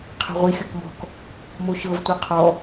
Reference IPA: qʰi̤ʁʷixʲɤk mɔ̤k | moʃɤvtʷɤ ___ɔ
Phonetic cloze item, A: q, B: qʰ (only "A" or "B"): B